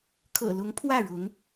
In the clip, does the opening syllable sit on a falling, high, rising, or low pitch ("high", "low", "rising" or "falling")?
low